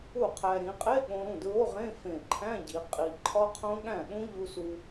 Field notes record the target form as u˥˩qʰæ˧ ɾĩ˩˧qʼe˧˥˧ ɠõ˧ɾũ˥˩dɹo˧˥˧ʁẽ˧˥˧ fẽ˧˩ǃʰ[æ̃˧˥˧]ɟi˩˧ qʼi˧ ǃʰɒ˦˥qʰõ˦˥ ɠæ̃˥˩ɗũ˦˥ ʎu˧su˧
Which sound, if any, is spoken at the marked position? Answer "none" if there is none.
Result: æ̃˧˥˧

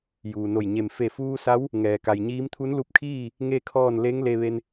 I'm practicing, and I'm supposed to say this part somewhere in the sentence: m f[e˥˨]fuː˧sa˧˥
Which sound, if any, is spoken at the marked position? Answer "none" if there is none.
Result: e˧˩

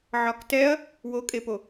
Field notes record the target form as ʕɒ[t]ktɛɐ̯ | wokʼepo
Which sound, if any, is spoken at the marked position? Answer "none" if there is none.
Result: none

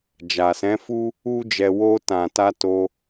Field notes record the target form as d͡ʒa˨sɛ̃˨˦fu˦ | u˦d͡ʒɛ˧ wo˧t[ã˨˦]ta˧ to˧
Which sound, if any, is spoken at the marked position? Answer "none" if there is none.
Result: ã˨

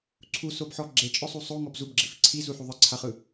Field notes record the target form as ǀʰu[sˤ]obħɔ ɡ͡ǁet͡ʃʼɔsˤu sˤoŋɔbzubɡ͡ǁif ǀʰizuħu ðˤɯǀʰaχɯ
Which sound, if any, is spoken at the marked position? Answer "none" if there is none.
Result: s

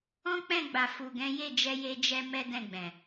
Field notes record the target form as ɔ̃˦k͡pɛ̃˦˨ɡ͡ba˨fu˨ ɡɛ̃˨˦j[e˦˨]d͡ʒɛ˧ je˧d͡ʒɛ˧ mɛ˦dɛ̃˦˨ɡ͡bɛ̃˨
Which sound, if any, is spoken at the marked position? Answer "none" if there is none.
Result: e˦˨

